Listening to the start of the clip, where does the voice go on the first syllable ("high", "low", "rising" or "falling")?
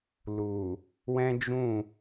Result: low